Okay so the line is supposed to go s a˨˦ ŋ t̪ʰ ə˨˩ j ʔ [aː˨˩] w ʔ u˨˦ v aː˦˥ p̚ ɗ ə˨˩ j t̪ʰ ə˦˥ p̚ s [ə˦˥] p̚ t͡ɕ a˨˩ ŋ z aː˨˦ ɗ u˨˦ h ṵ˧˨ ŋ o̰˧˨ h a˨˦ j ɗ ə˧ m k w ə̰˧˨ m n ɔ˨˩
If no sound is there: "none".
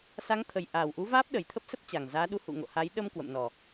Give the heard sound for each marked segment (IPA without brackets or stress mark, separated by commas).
aː˨˩, ə˦˥